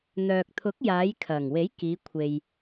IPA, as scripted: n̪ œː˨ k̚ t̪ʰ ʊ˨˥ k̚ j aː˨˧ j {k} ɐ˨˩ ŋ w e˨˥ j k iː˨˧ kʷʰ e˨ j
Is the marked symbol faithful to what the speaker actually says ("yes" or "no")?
no